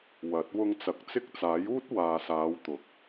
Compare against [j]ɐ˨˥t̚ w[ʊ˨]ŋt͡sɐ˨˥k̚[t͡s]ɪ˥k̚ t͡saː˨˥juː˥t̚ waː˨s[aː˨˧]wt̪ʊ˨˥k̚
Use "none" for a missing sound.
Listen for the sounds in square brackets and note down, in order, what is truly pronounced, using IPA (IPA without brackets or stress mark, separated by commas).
w, ʊ˧, t͡s, aː˨˧